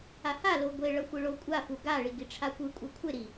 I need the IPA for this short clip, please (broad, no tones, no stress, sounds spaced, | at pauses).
a h a l o ɡʷ e ɭ ʌ xʷ ɯ ɭ o kʷʼ a f u ɡ a ɭ i ɡ i ʈ͡ʂʰ a kʷ ɯ kʷʼ ɛ kʷʰ e ɾ i